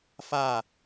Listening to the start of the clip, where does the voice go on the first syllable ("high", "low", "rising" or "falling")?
falling